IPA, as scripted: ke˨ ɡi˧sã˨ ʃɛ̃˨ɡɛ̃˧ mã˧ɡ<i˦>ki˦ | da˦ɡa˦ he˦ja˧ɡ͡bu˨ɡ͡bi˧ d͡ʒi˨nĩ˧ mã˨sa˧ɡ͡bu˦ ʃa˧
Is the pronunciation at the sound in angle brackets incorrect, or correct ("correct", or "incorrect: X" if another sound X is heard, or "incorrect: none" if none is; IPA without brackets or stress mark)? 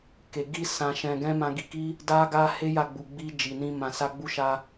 incorrect: i˧